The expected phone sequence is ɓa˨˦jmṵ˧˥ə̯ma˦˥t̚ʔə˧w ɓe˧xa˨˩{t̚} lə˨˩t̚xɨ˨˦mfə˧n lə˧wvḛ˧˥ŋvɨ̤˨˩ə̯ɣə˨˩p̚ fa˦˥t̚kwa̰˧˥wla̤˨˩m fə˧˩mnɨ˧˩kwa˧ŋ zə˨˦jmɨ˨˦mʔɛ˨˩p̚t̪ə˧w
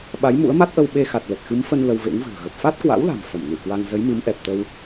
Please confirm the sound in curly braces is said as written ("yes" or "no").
yes